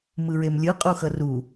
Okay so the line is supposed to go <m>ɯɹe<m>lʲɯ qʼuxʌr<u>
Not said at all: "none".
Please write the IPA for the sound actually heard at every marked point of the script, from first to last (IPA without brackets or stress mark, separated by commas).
m, m, u